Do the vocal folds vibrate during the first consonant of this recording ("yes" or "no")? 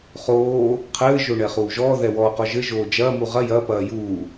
no